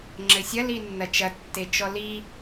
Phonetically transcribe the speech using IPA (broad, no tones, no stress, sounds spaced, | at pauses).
ŋ͡ǁ ɘ sʲ ɐ l i nː ɐ t͡ʃ ɐ tː e t͡ʃ ɔ l i